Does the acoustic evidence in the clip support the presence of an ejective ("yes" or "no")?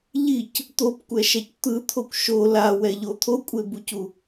yes